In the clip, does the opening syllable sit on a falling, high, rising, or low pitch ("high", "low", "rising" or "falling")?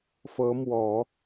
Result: rising